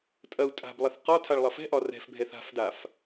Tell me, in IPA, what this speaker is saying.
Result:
tʼ ɐ u̯ tʼ a̤ b lˠ ɐ θ q ɒ tʰ a ɭ lˠ ɐ f ɛ̤ ʔ ɒ r ɛ̤ f bʱ ɛ θ a̤ f d a f

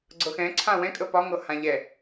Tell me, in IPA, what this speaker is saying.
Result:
ɡ͡ǀ ɤ x ɛ̃ ǀʰ ã w ɛ̃ kʼ ə p ɒ ŋ ɤ h ã ʎ ɛ

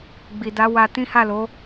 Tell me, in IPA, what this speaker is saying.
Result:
ɡ͡b i˨ d a˨˦ w a˧ t ĩ˦ h a˦˨ l o˨˦

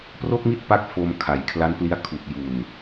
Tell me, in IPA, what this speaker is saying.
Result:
p r o˥˩ k̚ m i˥˩ t̚ p a˥˩ k̚ f o˧ m kʰ a˩˦ j kʰ l a˦˥ n p l i˦˥ a̯ kʰ u˨˩ k̚ j u˨˩ n

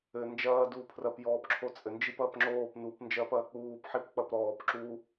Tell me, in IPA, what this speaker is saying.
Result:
ɘ n d͡ʒ ɐː d uː pʰ r ɐ p j ɔː p ǁʰ o t͡sʼ ɘ n d͡ʒ i p ɐː p ŋ͡ǁ oː p n u p n d͡ʒ ɐː p ɐː k͡p uː p ħ i p k͡p ɐ p ɾ ɔː p ǁ u

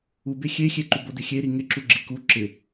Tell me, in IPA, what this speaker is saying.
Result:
u b e xʲ e xʲ e ǃ u b o d ɪ xʲ e ɾ i ŋ ɪ ǁ u ɡ͡ǁ i k u ǁ ɪ

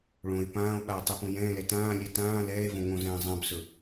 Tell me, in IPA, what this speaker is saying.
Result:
ɭ õ e̯ p ãː o̯ ɓ a o̯ tˤ ɛ p õ j ɛ̃ː l ɛ t ãː lʲ ɛ t ãː l ɛː e̯ v õ ŋ õ z ɛ̃ː zˤ ã b s ɵ

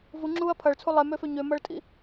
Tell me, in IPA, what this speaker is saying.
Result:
v u ŋ͡ǁ uː ɐ̯ pʰ ɐ ɭ t͡sʰ u lˠ ɛ m ø f ø ɲ ø m ɐ ɭ tʼ ḭ

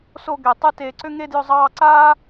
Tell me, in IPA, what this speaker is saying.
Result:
s o˥˧ ɡ ɛ˧˩ tˤ ɨ˥ t eː˧ ǀ ʏ˥ ŋ e˥˧ d j ʏ˥˧ zˤ ɑː˥˧ ǀ aː˥

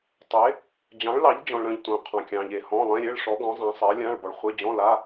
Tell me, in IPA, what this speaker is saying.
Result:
tˤ e˨˥ | d͡ʑ ɑ̃˨˥ ɭ l ɑ˨˥ ʎ d͡ʑ ɔ̃˨ ɭ ɾ œ̃˨ ʎ tʷ œ̃˨ qʰ ɑ̃˨ kʲ ɑ̃˨ ʎ e˨ h ɔ̃˧˥˧ lˠ ẽ˧˥˧ ɾʲ e˧˥˧ ɭ ʂ ɔ˨˥ ɡ ɔ̃˨˥ zˤ ã˨˥ sˤ ɜ˨˥ lʲ ã˧˥˧ ɭ b ɔ˨ ɭ χʷ e˧˥˧ d͡ʑ ɔ̃˧˥˧ l a˧˥˧

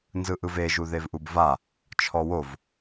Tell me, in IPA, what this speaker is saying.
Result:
n z ɯ ʔ ɯ v e ʒ u ð e v ʔ u b v a | t͡ʃʰ ɔ w o v

